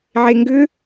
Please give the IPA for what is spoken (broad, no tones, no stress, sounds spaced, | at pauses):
ʕ e ŋ ɡ ʏ